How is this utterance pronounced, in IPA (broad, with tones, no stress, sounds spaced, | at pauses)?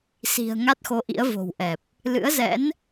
s i̤˨˩ ə̯ ŋ a˦˥ t̚ x o˨˦ ʔ ḭ˧˥ ə̯ v o̤˨˩ w ʔ ɛ˨˩ p̚ | l ɨ̰˧˥ ə̯ z ɛ̰˧˥ n